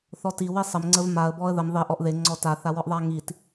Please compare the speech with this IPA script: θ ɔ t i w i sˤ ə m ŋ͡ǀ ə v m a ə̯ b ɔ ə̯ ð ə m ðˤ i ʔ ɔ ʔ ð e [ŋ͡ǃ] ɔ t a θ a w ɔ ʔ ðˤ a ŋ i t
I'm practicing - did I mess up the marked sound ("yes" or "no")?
yes